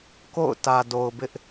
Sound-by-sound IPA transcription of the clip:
ko̰˦˨ʊ̯tä˨do˨ʊ̯bɪ˦ʔ

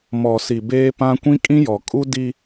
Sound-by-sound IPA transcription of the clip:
mɔ˨si˨ beː˦pã˦ kʷĩ˦kʼĩ˦jɔ˨kʼu˦ di˦

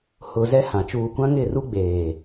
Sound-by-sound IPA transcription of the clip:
hʊ˨ zɛ˦hã˨ t͡ʃuː˨kʷã˦ŋɪ˦˨ru˦ ɡ͡beː˨

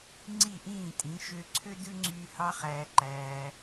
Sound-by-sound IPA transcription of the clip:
ŋ͡ǀi˦˨ʔĩː˦˨tʼĩ˨˦ ʃø˧ǀʰø˦dʉ˦ŋ͡ǀyː˧ hɑ˦χæː˧ǃæː˧

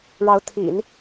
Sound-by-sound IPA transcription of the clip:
ɻɑ˧˥ʊ̯t̪ʰḭ˨˩˦n

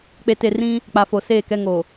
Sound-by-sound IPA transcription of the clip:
k͡pe˨te˨rĩ˦ | k͡pa˨fo˨seː˦˨kɛ˦ ŋo˨

